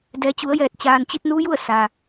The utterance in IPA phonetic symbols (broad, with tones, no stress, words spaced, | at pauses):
dɛː˩˧t͡ɕu˩˧ə̯jɛː˧˩t̚ t͡ɕaː˩nt͡ɕi˧t̚ nu˧˥ju˥˨ə̯ sa˩